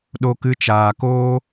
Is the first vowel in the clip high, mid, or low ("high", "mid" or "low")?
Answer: mid